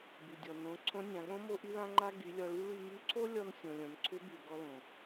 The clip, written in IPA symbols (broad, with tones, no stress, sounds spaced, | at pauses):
b y˩ dʲ ɔ˩ n õ˩˧ ǀʰ õ˧˥ nʲ ã˩˧ ɠ õ˥ m o˥ ʔ y˥ l ã˥ ŋ͡ǃ a˥ ɡ y˩˧ lʲ ɔ˧ ɭ y˥ ɭ y˧ m y˧˥ ǀʰ o˥ lʲ ɔ˧ n sʲ õ˩ lʲ õ˩ n ǀʰ ʏ˧˥ b y˩ ɡ ɔ˧ l õ˩